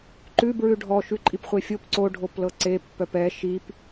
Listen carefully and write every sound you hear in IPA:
ǃ ʉ b ɹ ʉ ɖʱ ɔ ʃ ʉ ǃʼ i p χʷ e fʲ o p ǀ o ɖʱ o p l ɤ ǀ e pː œ p ɛ ʃ i p

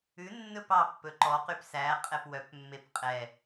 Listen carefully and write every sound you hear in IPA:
ʉ nː ɵ p ɑ pː ɵ ǃ ɔ q y p s æ qʼ ɛ p w œ p mː e p qʼ ɛ

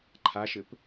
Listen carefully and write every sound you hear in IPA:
ǃʰ a ʃ ɘ p

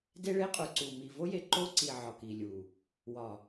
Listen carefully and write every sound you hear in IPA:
d e˦ ɭ e˦ qʼ u˨ ǀ u˨ m i˨ v o˦ j e˨ ǃ o˦ ǀ i˨ ʕ ɒ˨ k i˨ lʲ u˨ | w ɒ˨

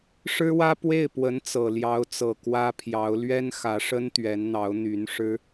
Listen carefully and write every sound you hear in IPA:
ʂ ɻ̩˥ w ä˥ p w e˥˩ ɪ̯ p w ə˧˥ n t͡s ɤ˨˩ l j ɑ˧˥ ʊ̯ t͡s ɤ˨˩ k w ä˥ pʰ j ɑ˧˥ ʊ̯ l ɥ ɛ˥ n x ä˧˥ ʂ ə˥ n t̪ ɥ ɛ˧˥ n n̪ ɑ˧˥ ʊ̯ n̪ y˧˥ n ʂ ɻ̩˥

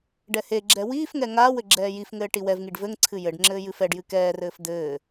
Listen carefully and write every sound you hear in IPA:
ɖ ɛ h e ɡ͡ǁ ɛ w iː f ŋ ɛ ŋ aː w ɘ ɡ͡ǁ ɛː j i f ŋ ɘː ʈ i w ɛ v ŋ i ɖ v ɘ ŋ ǀʰ ɨ j ɘ ɖ ŋ͡ǁ ɘː j ɨ f ɛ ɖ j ɨ k ɛː r ɘː f d̪ ɘː

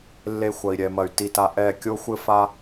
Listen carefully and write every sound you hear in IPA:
lː e˧ xʷ ɐ˨ i̯ ɾʲ ɛ˨ m ɐ˨ y̯ t i˧ t a˧ ʔ ɛ˦˨ kʲ o˦ xʷ ɘ˦ f a˦

